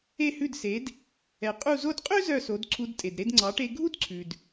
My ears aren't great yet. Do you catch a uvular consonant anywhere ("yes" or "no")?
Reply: yes